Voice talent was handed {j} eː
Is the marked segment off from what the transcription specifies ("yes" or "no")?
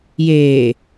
no